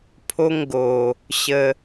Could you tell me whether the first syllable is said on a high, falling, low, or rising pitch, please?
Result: high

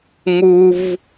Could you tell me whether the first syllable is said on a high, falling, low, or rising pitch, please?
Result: low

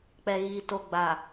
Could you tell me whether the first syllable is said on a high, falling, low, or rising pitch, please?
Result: low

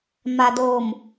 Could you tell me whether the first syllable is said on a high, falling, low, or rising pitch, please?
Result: low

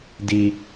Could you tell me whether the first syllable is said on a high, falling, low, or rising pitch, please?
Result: low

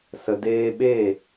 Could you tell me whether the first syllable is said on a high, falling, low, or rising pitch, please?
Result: low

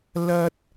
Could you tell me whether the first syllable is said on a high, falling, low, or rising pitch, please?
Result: high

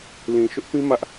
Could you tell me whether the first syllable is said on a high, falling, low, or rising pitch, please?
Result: low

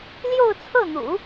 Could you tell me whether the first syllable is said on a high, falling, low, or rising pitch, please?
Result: falling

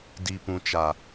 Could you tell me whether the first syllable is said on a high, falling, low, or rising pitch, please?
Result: low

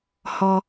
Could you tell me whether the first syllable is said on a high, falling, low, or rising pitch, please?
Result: high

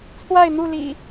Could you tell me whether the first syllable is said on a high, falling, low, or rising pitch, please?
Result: falling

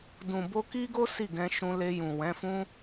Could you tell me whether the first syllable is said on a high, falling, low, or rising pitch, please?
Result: low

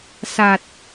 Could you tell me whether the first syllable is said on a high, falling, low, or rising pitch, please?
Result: low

